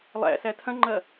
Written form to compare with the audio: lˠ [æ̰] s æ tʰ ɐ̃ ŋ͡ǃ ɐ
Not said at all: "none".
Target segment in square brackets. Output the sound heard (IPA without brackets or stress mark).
æ̰